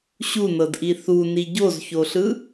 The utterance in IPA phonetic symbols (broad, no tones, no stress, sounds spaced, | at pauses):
ɕ u n ɤ d ʔ i θ u n i ɟ o z ç o ɬ ɯ